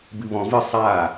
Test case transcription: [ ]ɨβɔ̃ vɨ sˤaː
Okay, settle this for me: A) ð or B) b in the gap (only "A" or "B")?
B